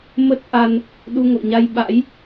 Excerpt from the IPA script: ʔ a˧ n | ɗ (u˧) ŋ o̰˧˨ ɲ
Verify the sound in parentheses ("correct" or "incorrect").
correct